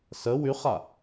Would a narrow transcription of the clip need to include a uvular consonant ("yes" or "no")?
yes